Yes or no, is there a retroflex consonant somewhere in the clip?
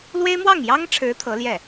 yes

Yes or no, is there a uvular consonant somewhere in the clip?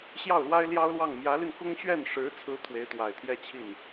no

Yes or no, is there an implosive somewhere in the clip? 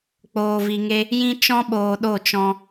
yes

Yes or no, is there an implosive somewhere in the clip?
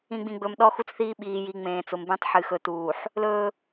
yes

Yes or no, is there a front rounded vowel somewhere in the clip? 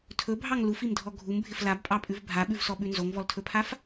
no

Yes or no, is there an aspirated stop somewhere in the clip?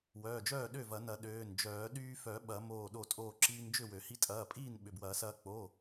no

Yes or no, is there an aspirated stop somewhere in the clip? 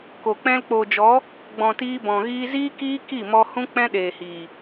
no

